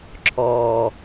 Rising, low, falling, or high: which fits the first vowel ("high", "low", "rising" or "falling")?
low